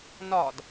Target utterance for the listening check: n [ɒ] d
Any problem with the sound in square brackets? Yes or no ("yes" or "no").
no